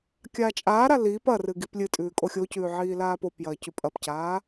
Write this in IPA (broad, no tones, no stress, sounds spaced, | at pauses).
kʲ aː t͡ʃʼ aː ɾ a l iː p ɐ r ɨ ɡ i p lʲ ɨ tʼ ʉː kʼ o xʲ o c ʉː ʕ iː l aː p o p j ɐː c ʉ pʼ ɐ p c aː